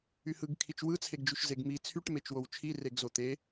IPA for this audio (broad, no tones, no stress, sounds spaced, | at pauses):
y h ɯ ɡ kʰ i t͡ʃ w ɯ t͡sʰ e ɡ d͡ʒ y ʃ z e ɡ m i t͡sʰ y ʈ m e t͡ʃ w o w t͡ʃʰ i r e ɡ z o t̪ e